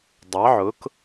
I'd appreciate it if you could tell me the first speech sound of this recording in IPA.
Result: dˤ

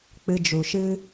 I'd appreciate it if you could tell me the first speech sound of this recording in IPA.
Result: k͡p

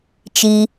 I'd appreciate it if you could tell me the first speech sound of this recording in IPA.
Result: t͡ʃ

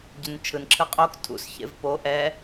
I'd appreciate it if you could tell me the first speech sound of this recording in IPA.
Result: ɟ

